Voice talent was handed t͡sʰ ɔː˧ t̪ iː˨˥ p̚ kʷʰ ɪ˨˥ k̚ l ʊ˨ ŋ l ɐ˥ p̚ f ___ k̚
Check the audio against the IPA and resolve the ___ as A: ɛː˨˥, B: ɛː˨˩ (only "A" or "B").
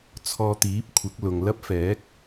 A